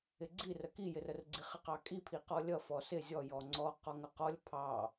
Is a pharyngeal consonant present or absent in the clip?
absent